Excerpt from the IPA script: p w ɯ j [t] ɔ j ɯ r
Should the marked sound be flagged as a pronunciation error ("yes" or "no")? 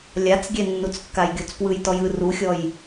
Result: no